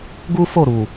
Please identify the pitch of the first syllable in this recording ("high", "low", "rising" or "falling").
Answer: high